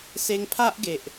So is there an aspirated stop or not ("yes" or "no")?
yes